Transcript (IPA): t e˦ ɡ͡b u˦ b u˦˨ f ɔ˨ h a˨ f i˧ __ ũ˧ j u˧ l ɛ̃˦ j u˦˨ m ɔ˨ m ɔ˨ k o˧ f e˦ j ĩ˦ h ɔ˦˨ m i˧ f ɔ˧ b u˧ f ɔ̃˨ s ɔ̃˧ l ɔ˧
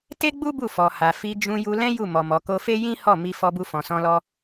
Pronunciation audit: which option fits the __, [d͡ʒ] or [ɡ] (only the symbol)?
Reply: d͡ʒ